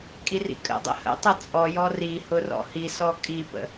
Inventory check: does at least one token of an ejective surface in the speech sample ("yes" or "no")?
yes